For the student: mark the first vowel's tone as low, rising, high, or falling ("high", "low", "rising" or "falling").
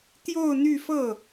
falling